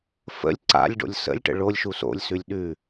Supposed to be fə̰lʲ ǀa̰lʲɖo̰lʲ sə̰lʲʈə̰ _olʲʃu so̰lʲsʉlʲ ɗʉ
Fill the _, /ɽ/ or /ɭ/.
ɭ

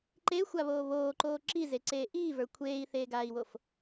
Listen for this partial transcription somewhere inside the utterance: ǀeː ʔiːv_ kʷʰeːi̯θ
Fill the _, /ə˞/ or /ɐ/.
ə˞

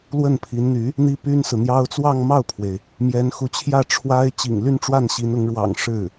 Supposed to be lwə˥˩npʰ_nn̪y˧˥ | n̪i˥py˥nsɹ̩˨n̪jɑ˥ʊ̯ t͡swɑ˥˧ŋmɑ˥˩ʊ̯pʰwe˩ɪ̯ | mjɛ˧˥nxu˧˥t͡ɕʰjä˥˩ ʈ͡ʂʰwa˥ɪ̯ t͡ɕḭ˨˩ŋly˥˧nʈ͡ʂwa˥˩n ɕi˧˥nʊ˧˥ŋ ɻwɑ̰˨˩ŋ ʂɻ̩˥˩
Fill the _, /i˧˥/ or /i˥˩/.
i˧˥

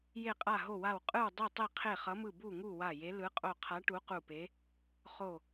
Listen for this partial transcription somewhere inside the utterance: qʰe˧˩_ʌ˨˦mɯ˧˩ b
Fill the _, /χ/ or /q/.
χ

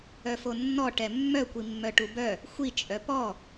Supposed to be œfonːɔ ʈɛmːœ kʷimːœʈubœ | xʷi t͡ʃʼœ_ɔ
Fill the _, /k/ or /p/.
p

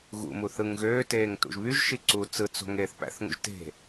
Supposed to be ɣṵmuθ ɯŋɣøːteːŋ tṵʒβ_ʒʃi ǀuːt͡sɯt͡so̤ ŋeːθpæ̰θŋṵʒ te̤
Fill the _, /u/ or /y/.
y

